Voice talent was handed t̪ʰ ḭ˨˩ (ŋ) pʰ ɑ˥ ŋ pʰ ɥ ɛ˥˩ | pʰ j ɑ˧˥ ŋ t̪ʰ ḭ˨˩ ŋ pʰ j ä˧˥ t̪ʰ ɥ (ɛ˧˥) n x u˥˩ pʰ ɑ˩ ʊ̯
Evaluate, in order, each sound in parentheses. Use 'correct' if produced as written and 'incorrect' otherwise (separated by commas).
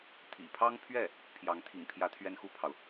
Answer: incorrect, incorrect